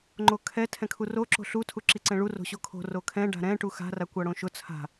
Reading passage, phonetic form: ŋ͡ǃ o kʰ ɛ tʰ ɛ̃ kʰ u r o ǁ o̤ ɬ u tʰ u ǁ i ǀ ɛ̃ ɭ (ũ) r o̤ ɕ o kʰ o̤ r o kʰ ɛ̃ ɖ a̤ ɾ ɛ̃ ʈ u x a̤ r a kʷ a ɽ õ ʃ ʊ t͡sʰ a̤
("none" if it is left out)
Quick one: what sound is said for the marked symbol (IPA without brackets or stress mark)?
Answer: u